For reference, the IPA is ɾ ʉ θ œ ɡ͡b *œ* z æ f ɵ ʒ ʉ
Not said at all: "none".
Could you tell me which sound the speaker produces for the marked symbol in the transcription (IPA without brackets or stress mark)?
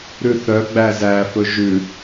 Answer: æ